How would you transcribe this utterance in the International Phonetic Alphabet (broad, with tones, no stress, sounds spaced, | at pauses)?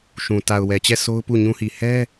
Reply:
ʃ ũ˨ t a˨ ʊ̯ w ɛ˨ t͡ɕ ɛ˦˨ s o˦ ʊ̯ p u˦˨ ɲ ũ˦ h i˨ h ɛ˦